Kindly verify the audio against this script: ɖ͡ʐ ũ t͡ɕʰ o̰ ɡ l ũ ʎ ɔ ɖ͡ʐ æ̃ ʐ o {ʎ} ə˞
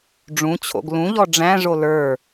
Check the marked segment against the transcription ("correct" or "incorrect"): incorrect